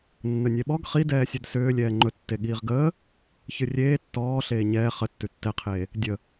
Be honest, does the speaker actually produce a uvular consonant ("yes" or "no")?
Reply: yes